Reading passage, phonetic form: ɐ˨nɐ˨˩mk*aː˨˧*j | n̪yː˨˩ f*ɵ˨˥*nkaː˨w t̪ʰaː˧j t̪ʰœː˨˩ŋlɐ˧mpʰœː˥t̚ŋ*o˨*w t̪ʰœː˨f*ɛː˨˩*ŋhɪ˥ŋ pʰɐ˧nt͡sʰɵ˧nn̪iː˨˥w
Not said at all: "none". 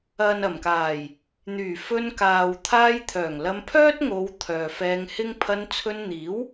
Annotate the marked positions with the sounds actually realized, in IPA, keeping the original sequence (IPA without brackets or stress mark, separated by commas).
aː˨˩, ɵ˧, o˨˧, ɛː˧